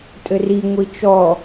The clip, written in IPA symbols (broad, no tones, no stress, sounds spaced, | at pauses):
tʼ ɘ r i ŋʷ i t͡ʃ ɔ